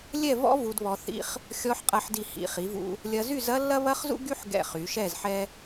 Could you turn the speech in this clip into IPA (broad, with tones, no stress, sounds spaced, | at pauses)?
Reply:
lʲ ɛ˥˧ v ɔ̰˥ v u˧ d β ɔ˧ θ ḭ˥ χ | xʲ ɔ˧ ħ qʼ ɐ˧ ħ d i˧˩ h ḭ˩˧ χ i˩˧ v ṵ˧ | lʲ ɐ˧ z y˥˧ z ɐ˥ lː ɐ˥ β ɐ˥ χ z ṵ˥ ɡ y˥ ħ ɡ ɛ̰˧˩ χ y˩˧ ʃ ɛ˥˧ z ħ ɛ˥